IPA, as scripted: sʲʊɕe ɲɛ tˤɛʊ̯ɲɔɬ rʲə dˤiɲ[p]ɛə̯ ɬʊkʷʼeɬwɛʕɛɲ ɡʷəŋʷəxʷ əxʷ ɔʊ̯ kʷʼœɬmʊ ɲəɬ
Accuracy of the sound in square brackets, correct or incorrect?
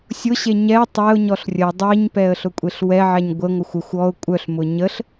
correct